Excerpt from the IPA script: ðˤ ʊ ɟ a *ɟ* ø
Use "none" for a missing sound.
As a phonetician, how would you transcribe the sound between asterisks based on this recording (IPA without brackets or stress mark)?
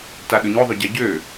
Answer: ɟ